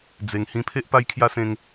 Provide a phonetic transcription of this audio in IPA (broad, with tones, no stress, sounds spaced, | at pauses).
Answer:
d͡z e˧ ŋ h ĩ˦ pʰ e˦ ʔ p a˦ j kʰ j a˦ s ẽ˦ ŋ